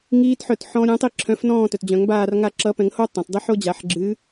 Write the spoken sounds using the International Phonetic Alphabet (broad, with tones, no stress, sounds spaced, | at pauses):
ŋ iː˦˥ t ħ œ˦˨ t ħ ɔ̃˦˥ ɾʲ õ˨˥ tˤ i˦˨ ǁʰ œ̃˨˥ f n ɔ̃ː˦˨ t œ˩ t d͡ʑ œ̃˨˩˦ ŋ b aː˦˨ r ŋ a˦˨ ǁ ʌ˨˥ p ɛ̃˨˩˦ ŋ h o˦˥ tˤ ã˩ t dˤ ɨ˨˥ ħ o˦˥ d͡ʑ a˨˩˦ ħ ɡ͡ǁ ɨ˨˥